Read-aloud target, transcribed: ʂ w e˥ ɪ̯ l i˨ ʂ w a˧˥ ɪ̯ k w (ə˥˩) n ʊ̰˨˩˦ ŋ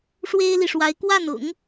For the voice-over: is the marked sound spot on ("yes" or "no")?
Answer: no